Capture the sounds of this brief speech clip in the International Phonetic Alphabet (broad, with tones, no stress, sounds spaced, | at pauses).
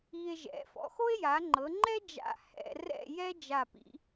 i˧ e̯ ʒ ɛ̰˩˧ f ɔ̰˩˧ x o˥ e̯ j a˩˧ ŋ͡ǃ ɤ˩˧ ŋ͡ǃ ɛ˥ d͡ʒ a̰˧˩ h ɛ̰˧ r ɛ̰˥˧ j ɛ˥ d͡ʒ a˧˩ p ḭ˩˧